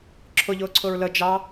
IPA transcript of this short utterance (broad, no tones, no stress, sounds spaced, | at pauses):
ǁʰ ʊ ʎ ʊː ǀʰ ʊ ɹ l ə d͡ʒ ɑ